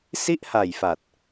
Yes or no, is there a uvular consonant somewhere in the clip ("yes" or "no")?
no